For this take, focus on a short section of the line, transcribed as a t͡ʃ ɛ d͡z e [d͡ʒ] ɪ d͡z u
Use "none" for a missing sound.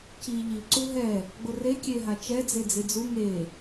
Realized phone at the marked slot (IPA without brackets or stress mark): d͡z